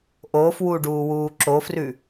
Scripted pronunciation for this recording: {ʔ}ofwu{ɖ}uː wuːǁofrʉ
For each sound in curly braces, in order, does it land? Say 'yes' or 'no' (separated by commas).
yes, yes